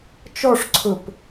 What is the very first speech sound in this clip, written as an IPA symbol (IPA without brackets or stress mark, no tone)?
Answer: t͡ʃ